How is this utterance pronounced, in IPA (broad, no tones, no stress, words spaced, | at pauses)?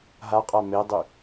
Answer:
ɦaqʼa medˤy